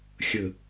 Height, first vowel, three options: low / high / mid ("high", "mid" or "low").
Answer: mid